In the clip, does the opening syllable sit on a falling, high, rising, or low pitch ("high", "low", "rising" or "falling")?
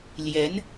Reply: rising